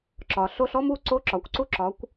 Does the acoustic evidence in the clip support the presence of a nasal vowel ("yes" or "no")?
no